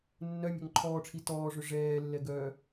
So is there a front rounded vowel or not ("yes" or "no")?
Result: yes